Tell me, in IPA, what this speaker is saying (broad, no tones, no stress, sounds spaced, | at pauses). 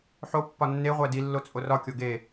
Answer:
ħ o pː ɒ nː e ʁʷ æ d i lː o t͡sʼ o r ɒ kʲ o ɡ e